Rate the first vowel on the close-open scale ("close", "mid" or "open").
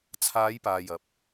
open